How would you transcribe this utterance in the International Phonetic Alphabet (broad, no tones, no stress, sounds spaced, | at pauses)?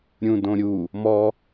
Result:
ɾʲ ũ d õ ɾʲ u | m ɔ